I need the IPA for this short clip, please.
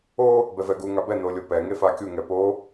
o | b ɛ v ɛ ɡ u ŋ a b ɛ n o lʲ o p ɛ ŋ e f a kʲ u ŋ ɛ p o

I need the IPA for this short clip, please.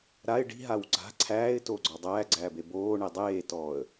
ɾ a ɪ̯ ɖ i̤ ɦ a w ɡ͡ǀ a̤ ǀʰ æː ɪ̯ t oː ɡ͡ǀ ɔ dˤ æː ɡ͡ǀ æː b e b oː ɳ e dˤ eː t ɔː ə̯

